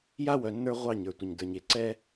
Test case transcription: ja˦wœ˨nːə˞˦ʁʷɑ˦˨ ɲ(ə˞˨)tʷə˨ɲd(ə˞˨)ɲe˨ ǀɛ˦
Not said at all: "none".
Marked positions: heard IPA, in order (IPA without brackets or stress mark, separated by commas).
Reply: ə˞˨, ə˞˨